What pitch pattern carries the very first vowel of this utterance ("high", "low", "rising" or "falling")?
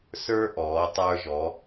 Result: high